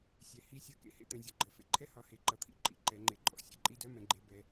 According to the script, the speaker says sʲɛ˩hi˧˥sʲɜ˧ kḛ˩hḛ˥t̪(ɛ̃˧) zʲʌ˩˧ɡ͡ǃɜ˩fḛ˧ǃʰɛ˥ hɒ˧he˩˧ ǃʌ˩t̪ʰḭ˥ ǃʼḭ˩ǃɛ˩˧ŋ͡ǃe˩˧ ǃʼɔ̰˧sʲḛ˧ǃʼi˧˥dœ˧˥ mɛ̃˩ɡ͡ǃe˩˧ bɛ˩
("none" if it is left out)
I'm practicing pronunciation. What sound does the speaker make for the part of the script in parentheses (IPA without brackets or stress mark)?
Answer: ɛ̃˩˧